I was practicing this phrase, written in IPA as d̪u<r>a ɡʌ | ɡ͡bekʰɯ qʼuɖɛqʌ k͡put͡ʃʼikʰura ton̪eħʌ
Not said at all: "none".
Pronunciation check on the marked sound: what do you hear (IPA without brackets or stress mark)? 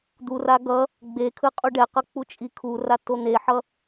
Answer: r